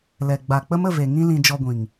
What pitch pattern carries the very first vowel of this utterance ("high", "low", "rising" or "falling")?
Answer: low